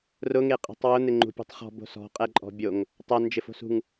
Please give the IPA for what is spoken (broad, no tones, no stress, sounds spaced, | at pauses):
r ʊ ŋ e qʼ i̤ tˤ w ʊ n̪ ɪ ŋ͡ǃ ṳ pʲ ṳ tˤ χ ɔ̤ b o̤ s ɔ̤ qʼ ɛ ǃʼ ɔ̤ bʲ o ŋ | tˤ ɛ n d͡ʒ ɪ f o̤ s ṳ ŋ